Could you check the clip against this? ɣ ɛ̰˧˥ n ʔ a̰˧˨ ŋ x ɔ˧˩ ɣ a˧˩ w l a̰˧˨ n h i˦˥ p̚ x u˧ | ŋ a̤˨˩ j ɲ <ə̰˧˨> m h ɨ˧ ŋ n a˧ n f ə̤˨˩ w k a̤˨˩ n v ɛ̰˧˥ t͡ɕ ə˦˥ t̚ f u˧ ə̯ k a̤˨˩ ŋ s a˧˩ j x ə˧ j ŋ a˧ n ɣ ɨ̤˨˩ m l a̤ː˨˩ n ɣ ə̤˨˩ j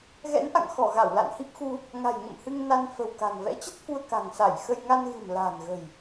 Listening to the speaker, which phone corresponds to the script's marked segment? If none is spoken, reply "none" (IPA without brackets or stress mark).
ə̰˧˨